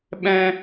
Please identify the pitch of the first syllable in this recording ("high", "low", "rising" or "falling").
high